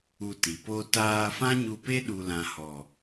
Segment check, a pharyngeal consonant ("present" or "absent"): absent